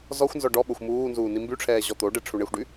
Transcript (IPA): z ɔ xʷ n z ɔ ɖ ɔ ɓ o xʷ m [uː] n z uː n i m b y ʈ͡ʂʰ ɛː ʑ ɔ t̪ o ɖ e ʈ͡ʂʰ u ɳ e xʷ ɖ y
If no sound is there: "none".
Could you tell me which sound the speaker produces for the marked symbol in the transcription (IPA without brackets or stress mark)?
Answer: uː